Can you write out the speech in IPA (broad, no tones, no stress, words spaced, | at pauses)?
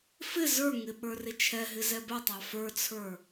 fɪ zə˞ŋɪ ɓə˞rɪt͡ʃʰɛɦɪ zɛbɛtˤɑ fə˞t͡sʰə˞